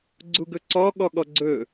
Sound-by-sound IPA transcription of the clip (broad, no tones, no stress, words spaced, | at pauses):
ɡ͡ǀuɡɵǀɔ ɠɔɠɔɡ͡ǀɵ